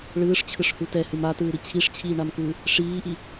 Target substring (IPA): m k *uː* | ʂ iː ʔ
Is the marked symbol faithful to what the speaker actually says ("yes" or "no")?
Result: no